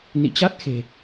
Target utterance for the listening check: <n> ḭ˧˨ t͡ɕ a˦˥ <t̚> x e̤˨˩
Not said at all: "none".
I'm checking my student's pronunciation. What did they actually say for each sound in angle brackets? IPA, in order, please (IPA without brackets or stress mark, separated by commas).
n, t̚